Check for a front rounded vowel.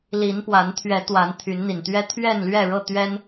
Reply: present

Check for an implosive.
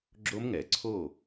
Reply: absent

